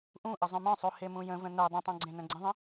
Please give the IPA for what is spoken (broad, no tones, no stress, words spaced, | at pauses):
ʔũʔə zˤœ̃mœ̃sˤu hemũjə̃və̃ nœ dˤə̃tˤœ̃ ɡ͡ǀẽnœ̃ɡ͡ǀə̃ðˤə̃